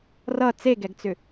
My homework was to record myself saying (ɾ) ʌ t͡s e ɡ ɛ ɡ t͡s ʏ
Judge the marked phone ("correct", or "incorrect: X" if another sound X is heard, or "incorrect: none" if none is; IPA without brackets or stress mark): incorrect: r